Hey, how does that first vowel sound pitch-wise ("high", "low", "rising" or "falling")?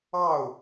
falling